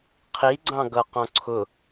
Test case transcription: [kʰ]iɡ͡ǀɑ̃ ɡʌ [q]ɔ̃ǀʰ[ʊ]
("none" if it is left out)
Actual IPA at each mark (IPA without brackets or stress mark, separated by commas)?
qʰ, q, ʊ